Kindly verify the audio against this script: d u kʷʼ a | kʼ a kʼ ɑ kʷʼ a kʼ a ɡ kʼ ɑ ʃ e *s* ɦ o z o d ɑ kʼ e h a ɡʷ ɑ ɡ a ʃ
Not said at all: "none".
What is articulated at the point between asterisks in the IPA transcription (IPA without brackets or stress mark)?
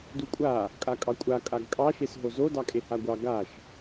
s